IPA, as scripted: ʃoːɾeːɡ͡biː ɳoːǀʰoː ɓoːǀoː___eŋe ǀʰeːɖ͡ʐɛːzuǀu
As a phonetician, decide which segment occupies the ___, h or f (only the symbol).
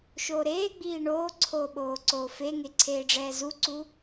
f